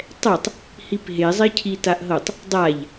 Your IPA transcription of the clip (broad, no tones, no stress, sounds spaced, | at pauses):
tˤ ɛ tˤ | h i p ɦ e zˤ e cʰ i t a ʔ ɦ ɤ tˤ | dˤ a ʎ